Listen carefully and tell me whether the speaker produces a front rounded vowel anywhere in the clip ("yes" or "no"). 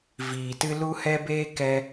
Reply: no